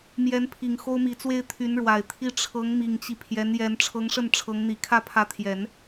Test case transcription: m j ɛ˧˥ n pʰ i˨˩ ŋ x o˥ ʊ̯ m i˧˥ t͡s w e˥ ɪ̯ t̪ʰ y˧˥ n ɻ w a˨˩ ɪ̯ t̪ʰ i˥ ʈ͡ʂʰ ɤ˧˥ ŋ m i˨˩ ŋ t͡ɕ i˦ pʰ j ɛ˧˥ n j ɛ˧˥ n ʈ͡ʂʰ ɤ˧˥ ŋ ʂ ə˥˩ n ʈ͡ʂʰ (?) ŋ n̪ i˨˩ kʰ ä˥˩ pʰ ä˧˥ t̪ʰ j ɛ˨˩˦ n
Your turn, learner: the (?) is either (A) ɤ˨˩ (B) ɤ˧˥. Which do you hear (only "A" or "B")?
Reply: B